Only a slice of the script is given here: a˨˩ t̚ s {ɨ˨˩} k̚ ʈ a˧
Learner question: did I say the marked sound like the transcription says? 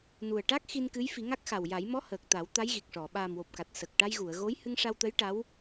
no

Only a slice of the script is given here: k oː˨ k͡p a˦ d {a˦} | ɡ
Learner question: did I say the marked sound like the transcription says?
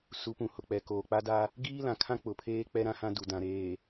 yes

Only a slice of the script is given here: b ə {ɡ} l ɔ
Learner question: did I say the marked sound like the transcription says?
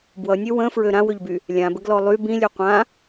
yes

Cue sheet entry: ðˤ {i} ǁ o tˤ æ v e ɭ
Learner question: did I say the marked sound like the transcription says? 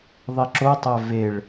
yes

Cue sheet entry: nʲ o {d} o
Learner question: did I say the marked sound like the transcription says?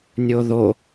no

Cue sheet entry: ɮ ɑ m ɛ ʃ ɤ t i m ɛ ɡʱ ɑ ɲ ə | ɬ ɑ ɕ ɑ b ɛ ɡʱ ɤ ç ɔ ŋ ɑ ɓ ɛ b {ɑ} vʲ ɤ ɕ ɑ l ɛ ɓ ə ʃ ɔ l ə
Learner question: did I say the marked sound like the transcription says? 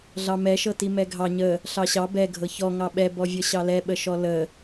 no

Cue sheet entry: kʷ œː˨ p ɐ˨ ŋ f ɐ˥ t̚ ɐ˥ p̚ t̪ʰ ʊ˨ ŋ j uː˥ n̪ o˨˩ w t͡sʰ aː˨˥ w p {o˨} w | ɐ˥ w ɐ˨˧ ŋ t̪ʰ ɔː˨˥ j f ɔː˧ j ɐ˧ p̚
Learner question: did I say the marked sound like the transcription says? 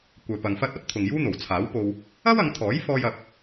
no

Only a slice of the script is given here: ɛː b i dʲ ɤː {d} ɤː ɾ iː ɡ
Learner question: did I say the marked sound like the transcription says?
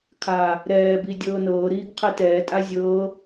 no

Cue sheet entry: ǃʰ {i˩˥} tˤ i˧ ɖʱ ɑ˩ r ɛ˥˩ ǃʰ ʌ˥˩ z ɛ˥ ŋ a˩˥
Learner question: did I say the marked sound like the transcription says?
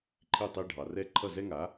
no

